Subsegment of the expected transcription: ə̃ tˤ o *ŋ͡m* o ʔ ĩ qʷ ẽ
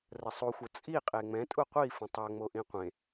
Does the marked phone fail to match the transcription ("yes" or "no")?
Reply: no